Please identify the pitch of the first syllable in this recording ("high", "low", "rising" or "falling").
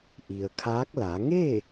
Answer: low